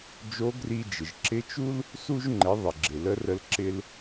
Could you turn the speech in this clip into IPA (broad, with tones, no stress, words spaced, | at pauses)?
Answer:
d͡ʒo˧˥ɡri˧d͡ʒɪ˩ʒ ǁɪ˧˥t͡ʃu˥l | su˧ʒŋ͡ǃɪ˩˧ ðˤɪ˩ɡ͡ǁɪ˩ lə˧˥rə˧l ǁɪ˧l